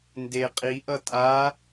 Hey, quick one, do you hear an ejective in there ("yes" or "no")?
yes